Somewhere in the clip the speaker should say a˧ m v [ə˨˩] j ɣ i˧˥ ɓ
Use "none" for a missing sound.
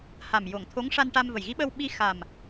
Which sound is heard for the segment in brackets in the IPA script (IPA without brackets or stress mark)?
ə˨˩